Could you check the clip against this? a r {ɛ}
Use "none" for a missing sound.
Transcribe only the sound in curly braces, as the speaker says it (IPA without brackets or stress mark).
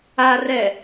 ɛ